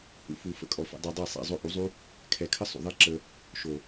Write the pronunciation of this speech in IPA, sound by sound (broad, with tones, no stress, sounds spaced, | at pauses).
h ṵ˧ f u˨ f ə̰˦˨ kʼ ɔ˨ f ɛ̰˧ dˤ ɛ˧ dˤ e˦˨ sˤ ɛ̰˨ zˤ o˧ ʔ u˨˦ zˤ u˦ | kʰ ɛ˨ kʰ ə˦ sˤ ṵ˨ ðˤ e˦ ǁ ə˧ | ʃ o˨